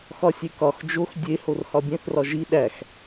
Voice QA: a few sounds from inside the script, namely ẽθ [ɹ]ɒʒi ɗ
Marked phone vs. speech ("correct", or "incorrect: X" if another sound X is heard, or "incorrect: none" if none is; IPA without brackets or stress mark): incorrect: r